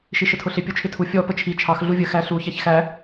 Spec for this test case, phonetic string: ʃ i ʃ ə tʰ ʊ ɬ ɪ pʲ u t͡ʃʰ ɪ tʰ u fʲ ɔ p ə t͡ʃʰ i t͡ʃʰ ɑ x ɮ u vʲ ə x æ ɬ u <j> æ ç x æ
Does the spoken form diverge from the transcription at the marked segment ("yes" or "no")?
yes